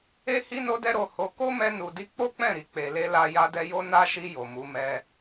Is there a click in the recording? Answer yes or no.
no